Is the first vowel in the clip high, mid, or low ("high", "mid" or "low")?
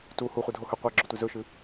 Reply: high